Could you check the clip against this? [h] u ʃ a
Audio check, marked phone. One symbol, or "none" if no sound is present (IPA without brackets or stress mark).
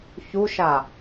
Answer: ç